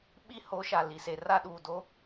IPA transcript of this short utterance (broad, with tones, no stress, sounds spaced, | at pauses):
ɓ i˦ h o˨˦ ʃ a˨ l i˨ s e˨ r a˦ ɗ uː˨ d o˦